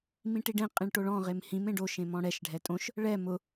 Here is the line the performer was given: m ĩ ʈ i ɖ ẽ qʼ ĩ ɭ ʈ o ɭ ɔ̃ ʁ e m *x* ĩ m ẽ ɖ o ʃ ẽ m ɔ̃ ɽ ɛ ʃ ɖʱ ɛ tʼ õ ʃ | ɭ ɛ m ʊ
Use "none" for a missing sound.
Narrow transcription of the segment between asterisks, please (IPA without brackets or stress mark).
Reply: h